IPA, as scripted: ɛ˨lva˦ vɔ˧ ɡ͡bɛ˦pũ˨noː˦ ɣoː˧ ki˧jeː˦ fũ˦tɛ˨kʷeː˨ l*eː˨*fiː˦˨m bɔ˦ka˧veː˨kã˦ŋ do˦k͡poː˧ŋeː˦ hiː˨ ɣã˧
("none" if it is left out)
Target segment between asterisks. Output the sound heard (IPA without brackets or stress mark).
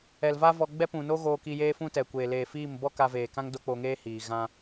eː˨